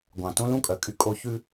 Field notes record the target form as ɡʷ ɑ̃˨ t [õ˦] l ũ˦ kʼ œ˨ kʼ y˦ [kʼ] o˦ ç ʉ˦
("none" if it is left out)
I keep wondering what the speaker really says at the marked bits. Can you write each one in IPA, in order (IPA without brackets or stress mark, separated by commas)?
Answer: õ˦, kʼ